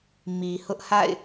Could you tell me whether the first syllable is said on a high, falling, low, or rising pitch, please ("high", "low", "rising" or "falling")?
low